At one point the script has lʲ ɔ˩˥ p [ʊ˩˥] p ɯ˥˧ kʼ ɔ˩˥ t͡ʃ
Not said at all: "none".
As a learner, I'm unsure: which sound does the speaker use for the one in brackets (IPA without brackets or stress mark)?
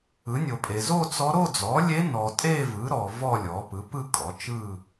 ɯ˩˥